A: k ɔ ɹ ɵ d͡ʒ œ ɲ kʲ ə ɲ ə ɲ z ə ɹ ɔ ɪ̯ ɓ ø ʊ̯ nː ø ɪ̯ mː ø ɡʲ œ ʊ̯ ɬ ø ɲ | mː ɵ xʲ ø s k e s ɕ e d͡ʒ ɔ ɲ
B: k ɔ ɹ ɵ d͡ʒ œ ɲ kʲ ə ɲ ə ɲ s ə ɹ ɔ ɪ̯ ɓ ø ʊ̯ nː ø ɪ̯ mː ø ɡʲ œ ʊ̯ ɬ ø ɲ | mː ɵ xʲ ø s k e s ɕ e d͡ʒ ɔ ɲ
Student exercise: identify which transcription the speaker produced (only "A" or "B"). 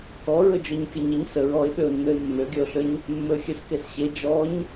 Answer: B